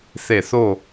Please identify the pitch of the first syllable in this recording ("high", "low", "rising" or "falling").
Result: falling